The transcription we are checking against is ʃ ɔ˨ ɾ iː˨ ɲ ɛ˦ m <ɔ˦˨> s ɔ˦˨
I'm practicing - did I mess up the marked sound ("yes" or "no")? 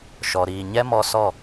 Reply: yes